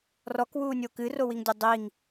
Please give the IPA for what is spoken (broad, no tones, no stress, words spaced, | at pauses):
rɔkwuːnʲo kɨrowiŋdʲɐ dˤiŋ